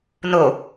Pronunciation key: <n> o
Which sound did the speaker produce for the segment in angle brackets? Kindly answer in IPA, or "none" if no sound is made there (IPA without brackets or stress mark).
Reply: n